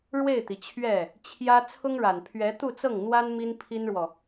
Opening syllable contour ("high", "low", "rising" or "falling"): falling